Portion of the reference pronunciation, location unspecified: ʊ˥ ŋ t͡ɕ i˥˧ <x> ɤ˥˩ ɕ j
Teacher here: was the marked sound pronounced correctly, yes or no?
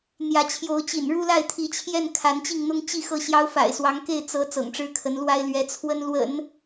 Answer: yes